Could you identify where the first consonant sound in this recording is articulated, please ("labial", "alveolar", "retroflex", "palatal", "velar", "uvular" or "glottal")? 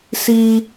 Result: alveolar